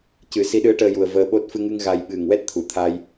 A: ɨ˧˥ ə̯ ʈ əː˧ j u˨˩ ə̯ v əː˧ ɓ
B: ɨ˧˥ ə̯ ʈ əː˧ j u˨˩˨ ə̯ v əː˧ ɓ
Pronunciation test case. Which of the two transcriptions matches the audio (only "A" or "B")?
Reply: A